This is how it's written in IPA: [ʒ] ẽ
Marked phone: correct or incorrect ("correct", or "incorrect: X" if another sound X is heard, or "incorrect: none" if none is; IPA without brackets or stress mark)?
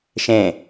incorrect: ʃ